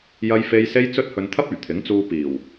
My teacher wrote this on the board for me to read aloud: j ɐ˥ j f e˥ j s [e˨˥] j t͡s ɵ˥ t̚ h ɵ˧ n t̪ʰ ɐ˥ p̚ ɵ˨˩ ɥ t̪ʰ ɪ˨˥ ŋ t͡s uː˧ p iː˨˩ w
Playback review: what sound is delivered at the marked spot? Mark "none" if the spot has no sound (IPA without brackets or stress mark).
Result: e˥